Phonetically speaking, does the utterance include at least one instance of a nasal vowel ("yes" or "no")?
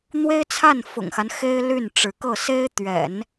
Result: no